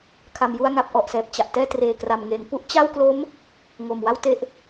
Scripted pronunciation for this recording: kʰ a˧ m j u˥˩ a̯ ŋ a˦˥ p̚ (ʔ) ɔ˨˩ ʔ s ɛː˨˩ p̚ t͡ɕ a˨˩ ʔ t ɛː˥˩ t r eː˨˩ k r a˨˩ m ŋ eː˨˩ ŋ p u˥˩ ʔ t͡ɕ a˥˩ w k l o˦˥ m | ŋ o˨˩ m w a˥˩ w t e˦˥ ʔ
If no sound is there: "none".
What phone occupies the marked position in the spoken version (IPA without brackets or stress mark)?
ʔ